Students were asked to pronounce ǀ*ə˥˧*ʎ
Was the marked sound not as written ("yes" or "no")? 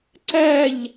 yes